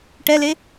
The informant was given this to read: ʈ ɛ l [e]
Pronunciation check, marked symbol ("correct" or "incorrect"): correct